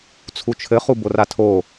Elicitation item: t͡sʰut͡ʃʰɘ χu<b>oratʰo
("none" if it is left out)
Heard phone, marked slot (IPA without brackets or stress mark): b